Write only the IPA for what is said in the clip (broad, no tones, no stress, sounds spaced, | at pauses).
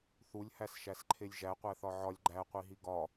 θ u lʲ h æ s ʃ æ s ǃʰ e lʲ ʒ æ qʷ æ θ ɒ ʕ ɒ lʲ ɡ͡ǃ æ qʷ i ɦ i ɡ ɒ